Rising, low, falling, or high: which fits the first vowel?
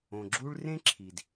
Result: low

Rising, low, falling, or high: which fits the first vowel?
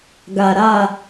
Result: low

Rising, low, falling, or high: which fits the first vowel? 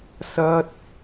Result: high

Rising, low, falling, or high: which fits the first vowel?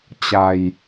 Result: low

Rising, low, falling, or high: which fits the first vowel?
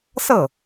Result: falling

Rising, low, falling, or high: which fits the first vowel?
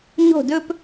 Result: falling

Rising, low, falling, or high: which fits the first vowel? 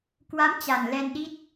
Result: rising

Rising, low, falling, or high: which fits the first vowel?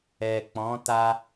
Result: low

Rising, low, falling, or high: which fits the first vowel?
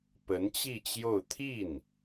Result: rising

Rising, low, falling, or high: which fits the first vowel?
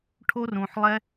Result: high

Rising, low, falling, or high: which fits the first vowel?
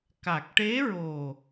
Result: low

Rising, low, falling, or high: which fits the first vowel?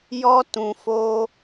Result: high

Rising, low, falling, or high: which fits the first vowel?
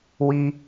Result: high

